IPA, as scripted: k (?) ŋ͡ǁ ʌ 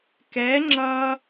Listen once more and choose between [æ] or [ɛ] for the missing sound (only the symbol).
ɛ